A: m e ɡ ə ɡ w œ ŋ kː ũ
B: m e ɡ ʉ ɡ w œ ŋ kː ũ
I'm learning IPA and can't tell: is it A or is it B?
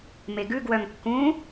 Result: B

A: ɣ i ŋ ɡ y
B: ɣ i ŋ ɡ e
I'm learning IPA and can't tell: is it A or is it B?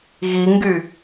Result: A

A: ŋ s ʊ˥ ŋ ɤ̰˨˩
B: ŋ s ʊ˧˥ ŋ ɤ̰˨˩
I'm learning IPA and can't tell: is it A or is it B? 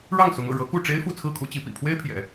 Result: B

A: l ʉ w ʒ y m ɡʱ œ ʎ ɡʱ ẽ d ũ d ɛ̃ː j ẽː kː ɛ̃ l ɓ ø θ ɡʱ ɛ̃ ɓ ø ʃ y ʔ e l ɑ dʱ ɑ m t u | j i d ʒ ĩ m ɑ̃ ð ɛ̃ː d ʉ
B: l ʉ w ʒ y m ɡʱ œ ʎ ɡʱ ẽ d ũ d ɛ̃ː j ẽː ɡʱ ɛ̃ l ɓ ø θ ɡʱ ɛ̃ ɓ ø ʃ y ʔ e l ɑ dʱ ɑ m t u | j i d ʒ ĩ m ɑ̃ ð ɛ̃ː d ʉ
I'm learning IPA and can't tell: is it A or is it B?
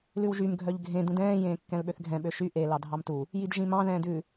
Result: A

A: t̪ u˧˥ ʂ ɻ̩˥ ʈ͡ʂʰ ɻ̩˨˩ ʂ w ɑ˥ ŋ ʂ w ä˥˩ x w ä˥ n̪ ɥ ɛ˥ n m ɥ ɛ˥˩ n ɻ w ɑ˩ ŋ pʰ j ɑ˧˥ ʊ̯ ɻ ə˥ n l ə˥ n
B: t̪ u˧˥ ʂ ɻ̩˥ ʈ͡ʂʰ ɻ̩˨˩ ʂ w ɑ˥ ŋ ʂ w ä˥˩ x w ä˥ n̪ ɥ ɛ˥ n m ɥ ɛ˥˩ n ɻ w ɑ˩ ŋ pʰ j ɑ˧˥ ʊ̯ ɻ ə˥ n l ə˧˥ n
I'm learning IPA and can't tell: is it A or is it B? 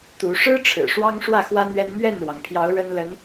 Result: B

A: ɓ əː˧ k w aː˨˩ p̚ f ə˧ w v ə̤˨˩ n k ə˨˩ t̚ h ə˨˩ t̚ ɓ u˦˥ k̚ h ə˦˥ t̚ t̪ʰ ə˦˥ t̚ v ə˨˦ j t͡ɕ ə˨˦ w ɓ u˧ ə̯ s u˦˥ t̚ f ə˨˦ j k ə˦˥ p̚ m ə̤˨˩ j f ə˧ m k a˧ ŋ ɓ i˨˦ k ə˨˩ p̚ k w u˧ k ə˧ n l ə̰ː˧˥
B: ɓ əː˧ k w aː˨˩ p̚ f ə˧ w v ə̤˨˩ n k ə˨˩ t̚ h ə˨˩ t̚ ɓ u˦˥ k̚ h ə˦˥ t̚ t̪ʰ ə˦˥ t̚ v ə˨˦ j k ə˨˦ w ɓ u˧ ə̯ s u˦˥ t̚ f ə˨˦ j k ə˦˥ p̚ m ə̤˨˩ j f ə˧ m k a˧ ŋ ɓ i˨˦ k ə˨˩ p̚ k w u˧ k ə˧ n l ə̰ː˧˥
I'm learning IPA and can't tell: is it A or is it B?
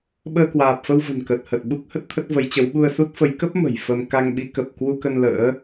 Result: A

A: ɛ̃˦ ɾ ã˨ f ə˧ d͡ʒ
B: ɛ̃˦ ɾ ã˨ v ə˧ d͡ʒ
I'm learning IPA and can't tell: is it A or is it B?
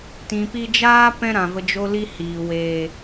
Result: B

